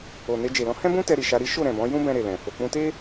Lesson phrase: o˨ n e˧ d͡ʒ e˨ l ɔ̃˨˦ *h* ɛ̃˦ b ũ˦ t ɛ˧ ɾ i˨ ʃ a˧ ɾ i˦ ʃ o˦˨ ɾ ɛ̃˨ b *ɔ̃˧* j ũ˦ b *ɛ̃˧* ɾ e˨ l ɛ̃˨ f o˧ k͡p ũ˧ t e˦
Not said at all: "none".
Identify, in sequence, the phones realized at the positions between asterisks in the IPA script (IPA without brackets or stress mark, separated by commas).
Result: h, ɔ̃˨˦, ɛ̃˧